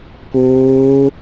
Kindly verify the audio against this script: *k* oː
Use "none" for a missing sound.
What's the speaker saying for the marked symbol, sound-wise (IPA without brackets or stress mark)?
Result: k